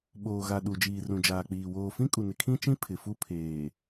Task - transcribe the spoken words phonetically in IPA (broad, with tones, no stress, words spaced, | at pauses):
ɓoː˨ɣa˨ ɗu˨ d͡ʒiː˨rũ˨d͡ʒaː˨k͡piː˨ woː˨fĩ˦kʼu˨nɪ˨ kʰĩ˦t͡ʃĩ˦ pʰɪ˨fu˦ pʰeː˨